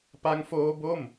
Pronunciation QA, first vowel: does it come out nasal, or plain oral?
oral